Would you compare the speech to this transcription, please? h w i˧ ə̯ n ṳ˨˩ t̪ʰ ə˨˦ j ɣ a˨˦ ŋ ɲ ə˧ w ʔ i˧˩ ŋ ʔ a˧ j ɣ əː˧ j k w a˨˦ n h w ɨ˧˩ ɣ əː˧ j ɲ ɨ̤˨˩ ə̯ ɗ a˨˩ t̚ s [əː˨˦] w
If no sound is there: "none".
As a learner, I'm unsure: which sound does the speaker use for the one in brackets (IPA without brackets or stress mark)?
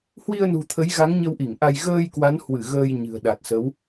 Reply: ə˨˦